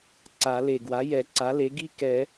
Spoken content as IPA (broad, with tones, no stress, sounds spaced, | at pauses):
ǀ a˨˩˦ l e˨˩ ɡ w a˩˥ j ɛ˨˩˦ ǀ a˩˥ l e˩˥ ɡ i˥ k ɛ˨˩˦